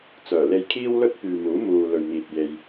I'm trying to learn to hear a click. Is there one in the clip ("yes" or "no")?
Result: no